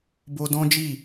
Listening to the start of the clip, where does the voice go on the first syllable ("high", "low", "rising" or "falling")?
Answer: high